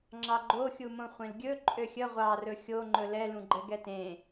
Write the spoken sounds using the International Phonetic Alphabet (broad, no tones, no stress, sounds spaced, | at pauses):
ŋ͡ǁ ɑ ɡ͡ǃ o xʲ u m õ χʷ ẽ l ɡʲ ɵ ǃʼ ø xʲ ə ʁʷ ɑ r ɵ xʲ o ŋ͡ǃ ɵ l ɛ l ũ ɡ͡ǃ ɛ ɡ ɛ t ẽ